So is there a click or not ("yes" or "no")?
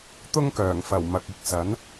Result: no